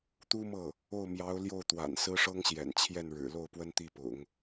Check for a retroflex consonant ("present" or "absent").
present